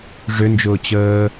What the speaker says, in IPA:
ʐʏnd͡ʒʊː t͡ɕəː

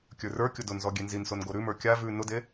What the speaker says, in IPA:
kʲə˞rə˞kʲʊ dʊnzɔ ɡʲenzinson ɡoɾʉmə˞ kʲa vʉ nʊde

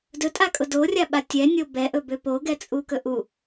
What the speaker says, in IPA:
dɵtʼakʼʊ dorʲaɓa tʲɛnʲo bɛʔɵbø poɡɛt͡sʼukɵ ʔu

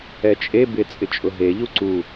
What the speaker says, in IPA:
ɛt͡ʃʼe bɪ t͡sʼɪt͡ʃʼʊɦe ʎuǀu

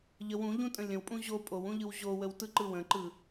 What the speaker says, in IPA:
ʎəw ũ ʎũtʼə̃lʲə̃wpʼũ ʑo pʼowũ ʎɯwʑowəw tɯǃɯwə̃ǃɯ

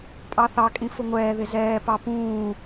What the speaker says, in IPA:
pʼɑθɑkʼĩ fʊŋʷɛːðɪ zɛː pɑpũː

